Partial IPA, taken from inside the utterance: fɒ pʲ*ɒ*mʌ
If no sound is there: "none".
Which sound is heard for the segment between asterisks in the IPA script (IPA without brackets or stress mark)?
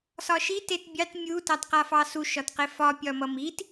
ɒ